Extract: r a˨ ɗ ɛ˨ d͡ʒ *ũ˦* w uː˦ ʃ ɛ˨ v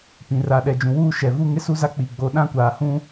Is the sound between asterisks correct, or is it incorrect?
incorrect